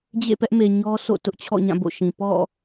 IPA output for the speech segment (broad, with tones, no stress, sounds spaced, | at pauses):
d͡ʑ ḛ˦˨ p ɛ˦ ʔ m e˨ ɲ ɔ˦ s o̰˦˨ t ʊ˦ ʔ t͡ɕʰ ɔ̰˦˨ ɲ ã˦˨ b o̰˦˨ ʃ ĩ˨ p ɔ̰˦˨